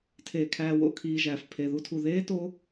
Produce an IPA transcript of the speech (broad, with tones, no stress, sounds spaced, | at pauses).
tʰ eː˧ kʰ æː˧ w o̰˦˨ kʰ iː˧ ʒ æː˨ f pʰ e˨ ð u˧ tʰ u˨ ð eː˦ t o˦